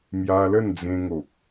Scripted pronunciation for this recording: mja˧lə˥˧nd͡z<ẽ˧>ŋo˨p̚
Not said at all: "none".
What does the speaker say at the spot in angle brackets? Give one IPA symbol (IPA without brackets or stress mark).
ẽ˧